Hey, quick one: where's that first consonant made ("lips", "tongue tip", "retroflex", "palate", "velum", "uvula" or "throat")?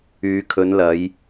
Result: velum